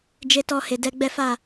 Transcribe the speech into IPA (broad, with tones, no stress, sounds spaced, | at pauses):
d͡ʒ e˧ t ɔ˧ h e˨ d ɛ˧ ɡ͡b ɛ˦ f a˦˨